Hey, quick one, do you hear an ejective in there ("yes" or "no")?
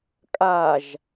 yes